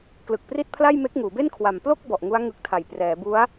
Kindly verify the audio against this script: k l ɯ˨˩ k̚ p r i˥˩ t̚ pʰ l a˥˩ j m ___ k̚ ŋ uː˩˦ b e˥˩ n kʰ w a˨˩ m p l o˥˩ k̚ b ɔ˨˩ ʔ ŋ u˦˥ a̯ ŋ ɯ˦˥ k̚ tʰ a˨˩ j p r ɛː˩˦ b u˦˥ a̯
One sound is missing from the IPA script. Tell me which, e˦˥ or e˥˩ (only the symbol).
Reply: e˦˥